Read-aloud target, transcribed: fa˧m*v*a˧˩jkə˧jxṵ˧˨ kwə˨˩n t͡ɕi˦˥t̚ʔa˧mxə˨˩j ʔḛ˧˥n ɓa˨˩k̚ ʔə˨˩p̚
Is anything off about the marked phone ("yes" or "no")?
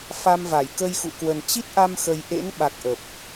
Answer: no